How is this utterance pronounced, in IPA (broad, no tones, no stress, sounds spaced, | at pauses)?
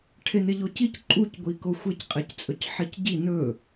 ʈʰ e n e ʎ o c i c ǃʼ u c ɡʷ i k o xʷ e c qʼ e c t͡sʼ ɵ c ħ i c ɟ i n ɵ